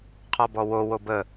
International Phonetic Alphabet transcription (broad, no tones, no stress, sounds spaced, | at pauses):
qʰ ɔ b ɔ w o w o b ə